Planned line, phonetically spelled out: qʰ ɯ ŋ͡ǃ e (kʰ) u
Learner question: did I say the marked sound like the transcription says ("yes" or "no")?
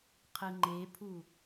no